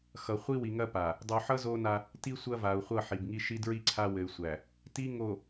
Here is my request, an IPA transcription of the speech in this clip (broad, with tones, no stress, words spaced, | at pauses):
xʌ˨χʷi˦ wi˨ŋɐ˦pa˨ | dˤu˨ħʌ˦ zo˦na˦ | ti˦ sʷɐ˦va˨u̯χʷʌ˦˨ ħi˨bŋi˦ ʃi˦dɹi˦ ǀʰa˦wɘ˨y̯sʷæ˨ | ti˦ ŋo˨